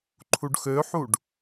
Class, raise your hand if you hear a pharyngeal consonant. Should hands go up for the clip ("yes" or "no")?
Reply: yes